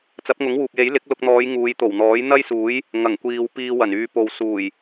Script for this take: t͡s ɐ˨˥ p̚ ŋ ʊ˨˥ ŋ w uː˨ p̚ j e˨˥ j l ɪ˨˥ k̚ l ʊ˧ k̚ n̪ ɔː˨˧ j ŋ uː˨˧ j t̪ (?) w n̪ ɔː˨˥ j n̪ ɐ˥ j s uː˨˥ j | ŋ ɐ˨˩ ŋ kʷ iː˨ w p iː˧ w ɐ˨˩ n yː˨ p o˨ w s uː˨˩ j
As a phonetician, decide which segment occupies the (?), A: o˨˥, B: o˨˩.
B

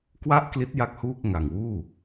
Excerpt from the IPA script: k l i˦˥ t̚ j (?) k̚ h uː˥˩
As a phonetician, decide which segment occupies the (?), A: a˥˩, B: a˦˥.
A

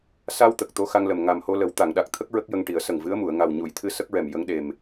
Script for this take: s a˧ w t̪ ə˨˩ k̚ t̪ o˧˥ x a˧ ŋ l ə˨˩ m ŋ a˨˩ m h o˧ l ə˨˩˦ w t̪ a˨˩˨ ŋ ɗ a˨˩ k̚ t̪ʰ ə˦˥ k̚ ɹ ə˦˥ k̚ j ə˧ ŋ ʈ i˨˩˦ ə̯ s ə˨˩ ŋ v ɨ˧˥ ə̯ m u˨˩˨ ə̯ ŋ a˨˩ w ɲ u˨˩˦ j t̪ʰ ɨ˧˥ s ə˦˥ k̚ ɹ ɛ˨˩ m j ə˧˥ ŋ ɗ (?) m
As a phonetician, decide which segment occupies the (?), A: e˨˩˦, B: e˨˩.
B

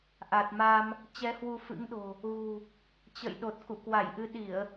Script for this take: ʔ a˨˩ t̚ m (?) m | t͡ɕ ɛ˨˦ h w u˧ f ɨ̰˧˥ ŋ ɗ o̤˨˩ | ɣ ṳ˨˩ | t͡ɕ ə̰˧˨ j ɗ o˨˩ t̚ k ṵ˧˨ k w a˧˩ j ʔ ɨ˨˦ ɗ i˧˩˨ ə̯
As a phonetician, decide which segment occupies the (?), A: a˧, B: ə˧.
A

